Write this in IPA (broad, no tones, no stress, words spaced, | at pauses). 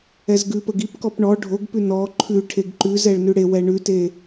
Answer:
ɛzɡʉpəɡ ipkɔp ɳɔ ɖʱoɡpʉ nɔ ǃʰʉ ʈʰeɡǃʉzɛɭ nʉɽewɛ ɳʉte